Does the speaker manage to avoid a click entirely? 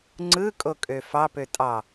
no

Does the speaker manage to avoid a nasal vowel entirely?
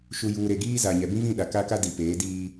no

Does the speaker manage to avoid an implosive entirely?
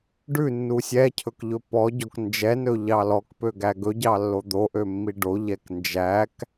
yes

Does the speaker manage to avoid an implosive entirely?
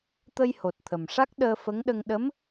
no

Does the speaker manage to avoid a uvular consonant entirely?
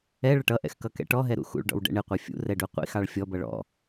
no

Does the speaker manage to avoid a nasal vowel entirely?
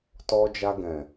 no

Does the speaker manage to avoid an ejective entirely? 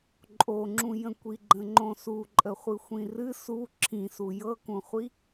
no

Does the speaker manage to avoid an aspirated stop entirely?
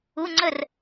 yes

